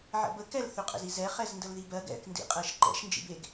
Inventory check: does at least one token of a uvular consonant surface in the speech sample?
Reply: yes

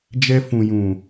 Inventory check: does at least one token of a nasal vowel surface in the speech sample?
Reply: yes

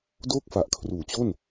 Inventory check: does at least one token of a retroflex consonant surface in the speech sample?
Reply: no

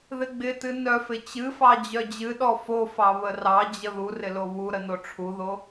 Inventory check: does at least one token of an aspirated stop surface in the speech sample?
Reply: yes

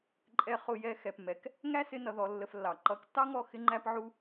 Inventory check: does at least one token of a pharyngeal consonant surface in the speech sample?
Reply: yes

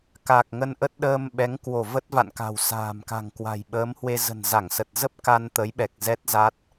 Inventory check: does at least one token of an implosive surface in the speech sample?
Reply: yes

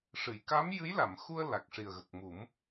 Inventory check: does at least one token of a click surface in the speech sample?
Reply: no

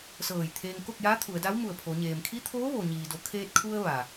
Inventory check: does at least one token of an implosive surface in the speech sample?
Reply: no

